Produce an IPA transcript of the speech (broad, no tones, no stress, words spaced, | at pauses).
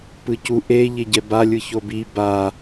pɯcu ʔe ʎeɟɛba lʲɯçobi ba